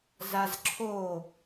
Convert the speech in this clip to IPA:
z a z ǁʰ o

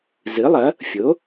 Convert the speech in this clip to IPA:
z ɨ˩˥ lˠ ɐ˩˥ | fʲ o˩˥

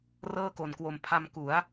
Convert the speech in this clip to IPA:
r ɤː˥˩ k o˨˩ n k w o˨˩ m pʰ a˧ m k u˩˦ a̯

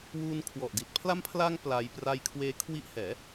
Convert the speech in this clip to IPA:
w uː˧ n kʰ w ɔ˨˩ ʔ d i˨˩ t̚ pʰ l a˧ m pʰ l a˧ ŋ p l a˧ j p r a˧ j kʰ w eː˦˥ kʰ w i˦˥ ʔ h ɛː˩˦

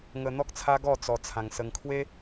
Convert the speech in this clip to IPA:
ŋ ə˧ n̪ ɔ˦ k̚ t͡sʰ a˦ ɡ ɔ˥˧ t͡s ɔ˧ t͡sʰ ã˧ ŋ s ə˧ ŋ kʰ w e˦

